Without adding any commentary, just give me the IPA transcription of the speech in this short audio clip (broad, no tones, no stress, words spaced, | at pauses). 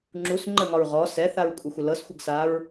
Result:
ŋ͡ǁus ŋ͡ǃəŋɒɹ ʁɔ sɛθaɹkʷʼəxʷə lɤsxʷəɡsaɹ